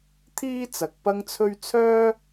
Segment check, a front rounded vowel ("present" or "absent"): present